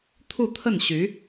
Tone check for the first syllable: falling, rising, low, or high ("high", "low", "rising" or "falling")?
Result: falling